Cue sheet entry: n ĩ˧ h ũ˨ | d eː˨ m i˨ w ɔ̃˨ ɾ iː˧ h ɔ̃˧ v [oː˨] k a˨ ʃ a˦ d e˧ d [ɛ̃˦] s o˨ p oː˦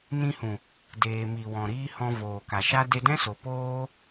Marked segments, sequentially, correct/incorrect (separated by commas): correct, correct